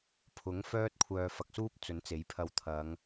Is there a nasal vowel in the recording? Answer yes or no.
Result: no